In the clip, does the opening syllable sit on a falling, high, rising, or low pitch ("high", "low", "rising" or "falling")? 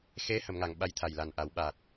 rising